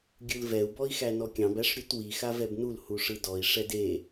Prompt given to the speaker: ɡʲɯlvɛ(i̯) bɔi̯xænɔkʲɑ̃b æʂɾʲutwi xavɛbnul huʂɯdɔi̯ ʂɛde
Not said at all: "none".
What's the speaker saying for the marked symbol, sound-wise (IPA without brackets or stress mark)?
u̯